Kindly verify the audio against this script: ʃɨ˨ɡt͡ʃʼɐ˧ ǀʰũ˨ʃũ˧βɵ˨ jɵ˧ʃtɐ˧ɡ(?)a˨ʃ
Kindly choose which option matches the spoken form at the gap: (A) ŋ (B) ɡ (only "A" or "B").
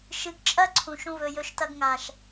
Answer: A